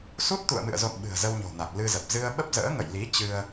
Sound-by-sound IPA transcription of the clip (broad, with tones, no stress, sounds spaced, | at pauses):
s u˦˥ t̚ t̪ ṵ˧˨ ə̯ m ɨ̰˧˨ ə̯ z o̰˧˨ n ɓ ɨ̤˨˩ ə̯ z ə˧ w ɲ o̤˨˩ n a˨˩ k̚ l ɨ˧ z ə˨˩ p̚ z ɨ˧ ə̯ ɓ ə˦˥ p̚ z ə̰ː˧˥ ŋ ə̰˧˨ j l i˨˦ t͡ɕ ɨ˧ ə̯